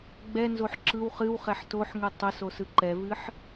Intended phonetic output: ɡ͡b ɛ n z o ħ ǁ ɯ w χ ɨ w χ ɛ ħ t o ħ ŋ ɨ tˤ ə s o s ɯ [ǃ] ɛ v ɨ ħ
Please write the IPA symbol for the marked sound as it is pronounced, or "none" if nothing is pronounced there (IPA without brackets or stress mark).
ǃ